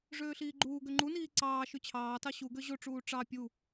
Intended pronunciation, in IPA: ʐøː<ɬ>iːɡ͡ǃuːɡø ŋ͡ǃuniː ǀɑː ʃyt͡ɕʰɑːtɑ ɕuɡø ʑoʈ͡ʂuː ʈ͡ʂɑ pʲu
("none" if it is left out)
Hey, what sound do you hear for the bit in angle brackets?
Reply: ɬ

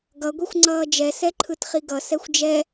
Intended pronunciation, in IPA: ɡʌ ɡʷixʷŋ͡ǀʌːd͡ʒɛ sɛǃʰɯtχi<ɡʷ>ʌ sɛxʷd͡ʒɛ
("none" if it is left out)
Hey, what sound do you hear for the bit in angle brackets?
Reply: ɡ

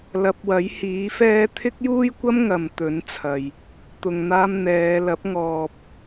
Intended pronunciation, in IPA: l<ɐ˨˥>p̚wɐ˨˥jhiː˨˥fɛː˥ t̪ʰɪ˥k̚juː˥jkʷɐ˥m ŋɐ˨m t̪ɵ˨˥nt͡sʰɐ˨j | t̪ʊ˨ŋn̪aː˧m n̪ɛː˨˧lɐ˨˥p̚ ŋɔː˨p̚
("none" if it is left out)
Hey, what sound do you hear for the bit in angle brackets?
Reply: ɐ˨˥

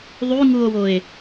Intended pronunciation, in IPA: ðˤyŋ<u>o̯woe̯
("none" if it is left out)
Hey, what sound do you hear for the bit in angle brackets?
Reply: u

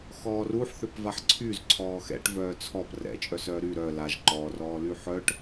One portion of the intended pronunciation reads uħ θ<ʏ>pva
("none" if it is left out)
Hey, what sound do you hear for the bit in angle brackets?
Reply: ʏ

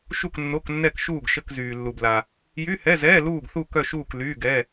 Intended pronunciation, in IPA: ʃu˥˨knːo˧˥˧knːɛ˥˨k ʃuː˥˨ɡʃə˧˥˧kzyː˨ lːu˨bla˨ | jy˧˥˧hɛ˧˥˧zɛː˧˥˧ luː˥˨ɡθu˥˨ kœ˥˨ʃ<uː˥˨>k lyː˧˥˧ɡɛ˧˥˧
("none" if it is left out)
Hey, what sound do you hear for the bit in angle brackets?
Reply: uː˥˨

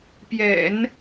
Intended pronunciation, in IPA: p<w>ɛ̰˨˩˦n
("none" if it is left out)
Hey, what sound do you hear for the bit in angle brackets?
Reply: j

